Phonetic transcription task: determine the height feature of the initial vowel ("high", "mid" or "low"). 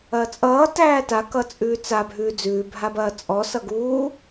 low